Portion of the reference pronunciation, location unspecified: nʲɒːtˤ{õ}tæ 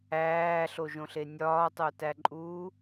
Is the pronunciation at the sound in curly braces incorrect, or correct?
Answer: incorrect